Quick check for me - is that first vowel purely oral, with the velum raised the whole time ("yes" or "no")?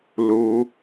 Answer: yes